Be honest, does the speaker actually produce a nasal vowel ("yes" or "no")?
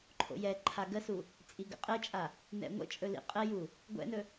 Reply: no